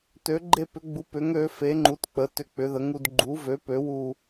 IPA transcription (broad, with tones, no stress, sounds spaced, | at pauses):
t ø˨˥ ɡ͡ǃ e˦ p ʏ˨˥ ɡ͡b u˨˥ p ʏ˨˥ ŋ ø˨˥ f e˨˥ ŋ͡ǃ u˨˥ t k͡p ə˨˥ t ʏ˦ k͡p ʏ˨˥ ð ə˨˥ ŋ u˦ d ɡ͡ǃ u˨˥ v ø˨˥ p ø˨˥ w u˦